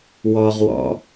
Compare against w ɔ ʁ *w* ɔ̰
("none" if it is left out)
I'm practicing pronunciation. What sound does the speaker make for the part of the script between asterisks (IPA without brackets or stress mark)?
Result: w